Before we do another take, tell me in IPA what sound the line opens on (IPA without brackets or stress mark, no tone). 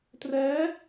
t